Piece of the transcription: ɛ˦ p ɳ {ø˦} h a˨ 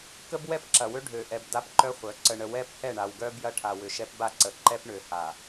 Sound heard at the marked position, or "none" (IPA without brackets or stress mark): ø˨